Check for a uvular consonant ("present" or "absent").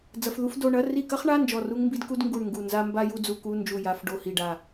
present